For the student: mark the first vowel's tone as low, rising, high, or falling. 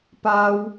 high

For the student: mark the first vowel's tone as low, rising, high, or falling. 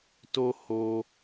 high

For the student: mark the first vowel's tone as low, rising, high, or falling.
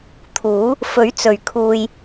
rising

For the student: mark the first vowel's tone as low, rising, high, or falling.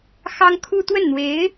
high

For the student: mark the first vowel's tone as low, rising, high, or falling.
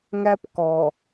high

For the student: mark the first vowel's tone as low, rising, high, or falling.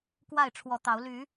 falling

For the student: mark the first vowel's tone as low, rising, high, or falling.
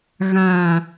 low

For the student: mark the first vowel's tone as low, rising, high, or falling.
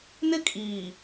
high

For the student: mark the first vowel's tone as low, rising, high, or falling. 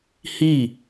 falling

